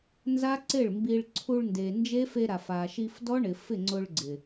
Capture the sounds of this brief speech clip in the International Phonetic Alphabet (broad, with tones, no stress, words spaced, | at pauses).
nza˦ǀɪ˦˨ɭmbi˧ɭ ǀʰu˧ɭnde˨ nd͡ʒe˦fe˧ɾa˨f a˨ʃi˧fdɔ˦ɳɪ˨ fɪ˦˨ŋ͡ǀʊ˧ɭɡ͡ǀɪ˨